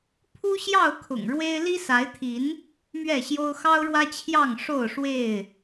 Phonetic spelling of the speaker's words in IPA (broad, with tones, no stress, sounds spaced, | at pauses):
pʰ u˦ ɕ j ɑ˥˨ ʊ̯ kʰ ʊ̰˨˩ ŋ ɻ w e˦ ɪ̯ l i˦ s a˨˦ ɪ̯ t̪ʰ i˨˦ n | m ɥ ɛ˥˨ ɕ j o˦ ʊ̯ x ɑ˦ ʊ̯ ɻ w ä˦ t͡ɕʰ j ɑ˥˨ ŋ ʂ o˥˨ ʊ̯ ʂ w e˥˨ ɪ̯